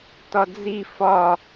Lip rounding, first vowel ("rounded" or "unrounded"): rounded